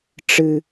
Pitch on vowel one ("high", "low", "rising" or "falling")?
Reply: high